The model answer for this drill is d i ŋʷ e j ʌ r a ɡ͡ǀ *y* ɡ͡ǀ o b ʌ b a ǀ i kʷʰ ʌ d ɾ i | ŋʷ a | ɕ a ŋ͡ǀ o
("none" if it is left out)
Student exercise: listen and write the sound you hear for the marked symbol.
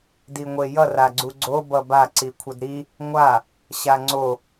u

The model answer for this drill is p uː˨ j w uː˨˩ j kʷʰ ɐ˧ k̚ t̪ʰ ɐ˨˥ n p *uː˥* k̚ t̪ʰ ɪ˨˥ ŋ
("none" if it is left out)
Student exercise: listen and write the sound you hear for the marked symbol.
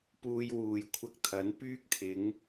yː˥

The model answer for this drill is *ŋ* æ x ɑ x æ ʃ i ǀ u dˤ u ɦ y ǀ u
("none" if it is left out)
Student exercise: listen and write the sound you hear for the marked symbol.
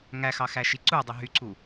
ŋ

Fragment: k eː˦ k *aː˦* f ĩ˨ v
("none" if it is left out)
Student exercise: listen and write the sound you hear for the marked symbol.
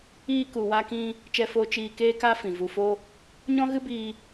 a˦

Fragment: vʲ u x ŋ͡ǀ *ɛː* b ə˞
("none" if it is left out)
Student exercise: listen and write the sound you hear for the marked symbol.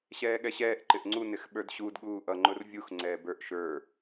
ɛː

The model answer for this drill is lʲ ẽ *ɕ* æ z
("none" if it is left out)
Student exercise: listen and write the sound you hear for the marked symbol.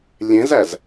z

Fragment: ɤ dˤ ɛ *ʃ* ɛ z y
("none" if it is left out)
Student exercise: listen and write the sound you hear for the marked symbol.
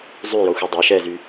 ʃ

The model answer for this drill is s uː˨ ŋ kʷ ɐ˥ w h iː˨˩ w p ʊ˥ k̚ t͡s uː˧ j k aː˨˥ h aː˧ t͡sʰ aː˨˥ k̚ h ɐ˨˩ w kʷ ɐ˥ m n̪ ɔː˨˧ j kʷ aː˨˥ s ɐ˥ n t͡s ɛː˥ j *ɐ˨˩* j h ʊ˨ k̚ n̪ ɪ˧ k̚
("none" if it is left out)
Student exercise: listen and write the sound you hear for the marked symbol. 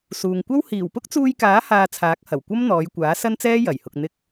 ɐ˨˩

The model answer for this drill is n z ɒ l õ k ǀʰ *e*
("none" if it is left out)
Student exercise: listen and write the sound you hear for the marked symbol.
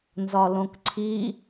i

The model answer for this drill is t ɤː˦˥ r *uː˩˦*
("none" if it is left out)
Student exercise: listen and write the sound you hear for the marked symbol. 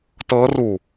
uː˧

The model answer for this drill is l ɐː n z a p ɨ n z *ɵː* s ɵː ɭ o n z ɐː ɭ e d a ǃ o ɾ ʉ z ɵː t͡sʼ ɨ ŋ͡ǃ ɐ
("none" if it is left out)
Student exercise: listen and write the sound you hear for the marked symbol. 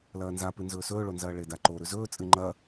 ɵː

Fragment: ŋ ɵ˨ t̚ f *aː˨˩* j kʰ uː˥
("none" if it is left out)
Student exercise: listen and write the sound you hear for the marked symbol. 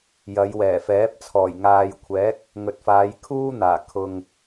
aː˨˧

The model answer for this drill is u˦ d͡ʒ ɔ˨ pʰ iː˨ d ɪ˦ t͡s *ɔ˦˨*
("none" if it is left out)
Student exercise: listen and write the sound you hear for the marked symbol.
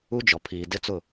ʊ˦˨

